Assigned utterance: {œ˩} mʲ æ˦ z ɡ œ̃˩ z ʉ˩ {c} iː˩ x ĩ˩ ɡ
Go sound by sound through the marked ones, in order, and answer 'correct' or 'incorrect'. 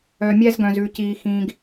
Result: correct, correct

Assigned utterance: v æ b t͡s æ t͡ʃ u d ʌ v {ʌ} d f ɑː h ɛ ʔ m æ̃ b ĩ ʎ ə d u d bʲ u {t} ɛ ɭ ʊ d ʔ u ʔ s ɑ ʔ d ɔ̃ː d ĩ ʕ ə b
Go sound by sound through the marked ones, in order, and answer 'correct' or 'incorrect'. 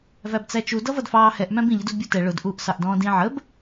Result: correct, correct

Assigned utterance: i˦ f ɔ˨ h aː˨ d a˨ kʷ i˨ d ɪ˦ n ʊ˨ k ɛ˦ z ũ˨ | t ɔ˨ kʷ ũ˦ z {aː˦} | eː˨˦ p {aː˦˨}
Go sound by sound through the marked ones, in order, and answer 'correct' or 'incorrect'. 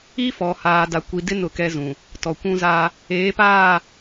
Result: correct, correct

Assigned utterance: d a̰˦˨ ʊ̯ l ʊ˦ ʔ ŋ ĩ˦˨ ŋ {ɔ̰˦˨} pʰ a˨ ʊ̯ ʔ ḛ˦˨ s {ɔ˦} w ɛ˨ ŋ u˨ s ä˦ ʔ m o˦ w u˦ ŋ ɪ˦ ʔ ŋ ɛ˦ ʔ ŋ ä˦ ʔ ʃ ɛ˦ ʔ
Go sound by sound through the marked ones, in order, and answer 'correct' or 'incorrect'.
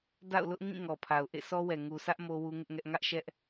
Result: incorrect, correct

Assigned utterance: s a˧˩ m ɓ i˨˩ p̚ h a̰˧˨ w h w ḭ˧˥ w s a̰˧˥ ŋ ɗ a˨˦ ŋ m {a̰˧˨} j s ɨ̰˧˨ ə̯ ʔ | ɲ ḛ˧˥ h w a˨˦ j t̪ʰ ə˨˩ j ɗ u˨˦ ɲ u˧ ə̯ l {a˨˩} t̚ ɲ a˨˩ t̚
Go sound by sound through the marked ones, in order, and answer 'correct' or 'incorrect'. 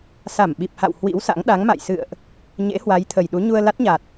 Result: correct, incorrect

